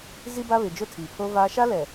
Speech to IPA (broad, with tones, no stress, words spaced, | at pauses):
zi˦ba˦βɪ˨ d͡ʒʊ˦tʰiː˨pʰo˦vaː˦ ʃa˦lɛ˨